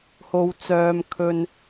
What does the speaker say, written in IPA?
h o˥ w t͡s œː˥ m kʰ ɵ˥ n

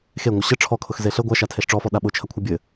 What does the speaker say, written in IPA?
x e ŋʷ ə ɕ ə ʈ͡ʂʰ ɔ kʰ ʊ x z e ɬ ə ɡʷ a ʃ a tʰ e ɬ ʈ͡ʂ ɔ f ɔ ɗ a ɓ ʊ t͡ʃʰ ɐ kʷʰ ɐ bʲ ɘ

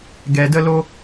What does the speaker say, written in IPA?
ɡ ɛ˧ d ə˦ l o˦

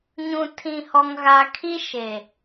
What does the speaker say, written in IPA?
ɲ ũ˨ tʰ ĩ˨ h ɔ˨ ŋ ɣ a˨ kʰ i˦ ʃ e˨

